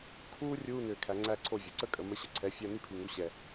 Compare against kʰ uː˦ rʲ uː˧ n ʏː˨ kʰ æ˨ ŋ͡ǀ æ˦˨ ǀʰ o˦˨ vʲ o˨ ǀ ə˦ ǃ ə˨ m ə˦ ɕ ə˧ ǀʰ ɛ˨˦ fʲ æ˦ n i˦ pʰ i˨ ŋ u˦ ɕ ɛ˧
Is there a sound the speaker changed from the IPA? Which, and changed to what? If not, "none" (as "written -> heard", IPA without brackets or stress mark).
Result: ǃ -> kʼ